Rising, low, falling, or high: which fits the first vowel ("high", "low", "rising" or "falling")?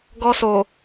high